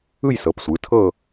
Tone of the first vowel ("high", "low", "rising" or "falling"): falling